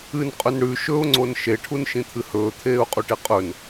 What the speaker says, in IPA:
ɨ n qʼ ɵ n ɽ ʉ ʃ ɵ ʊ̯ ŋ͡ǀ o n ʃ e ʈʰ u n ʃ ĩ t̪ʰ ɨ h ɵː t̪ʰ eː ʊ̯ qʼ u ʈ e qʼ ɵ n

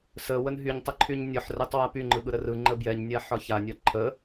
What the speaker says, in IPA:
s ə w ə n ɦ y ɲ tˤ ə ǃʰ y ɲ nʲ ɒ ħ r ɛ tˤ w a p y ŋ͡ǃ ɯ ɠ ɯ ɾ ə r ɯ ŋ͡ǃ ə b j ɛ ɲ nʲ a ħ ɒ ç a nʲ ɒ ǃʰ ə

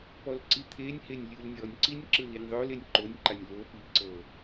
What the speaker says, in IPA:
p ɔ l ǀ i t̪ʰ e nʲ h e nʲ lʲ ɯ l nʲ ɔ nʲ ǀ i nʲ ǁ ɯ l i nʲ ðˤ o l e nʲ ǃ o nʲ ǃ a nʲ l o p i ǀ ɤ

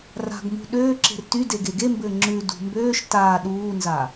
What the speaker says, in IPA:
r a̤ ɡ m ṳ ɗ øː ǁ e̤ r t y d e ɡ e ɡ e m b ɘː ŋ͡ǁ ʉ d ṳ m b øː ʃ t aː ɗ uː n z a

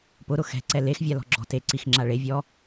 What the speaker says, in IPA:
p ʊ ɾ ʊ x ɛ̤ ǀ ɛ l e x vʲ a l ɔ̤ ɡ͡ǁ ɔ̤ t e ǀ i x ŋ͡ǁ a ɭ e vʲ ɔ

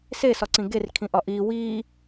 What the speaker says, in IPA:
s e s ɒ ǀ ĩ ɡ e r kʰ ĩ ʔ ɒ ʔ i w i

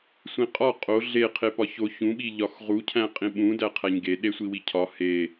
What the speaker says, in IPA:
sʷ ĩ qʼ ɒ qʼ o ɮ e qʰ e p ɒ ç o ç ũ ɓ i ʎ ɒ x ʁ u cʰ æ̃ qʼ ĩ ɓ ũ d æ qʰ æ ɲ ɡ e ɗ e sʷ i w i cʰ ɒ h e

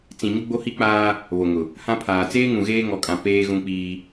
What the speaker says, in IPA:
t͡s ĩ˨ ɲ ʊ˦ ɡ͡b o˦ h i˦ k͡p aː˦ | β o˨ ŋ ʊ˨ | h ã˦ pʰ aː˨ t͡s eː˦ ŋ ũ˨ ɣ eː˦ ŋ ɔ˨ kʼ ã˨ p eː˦ ɣ ũ˦ k͡p iː˦

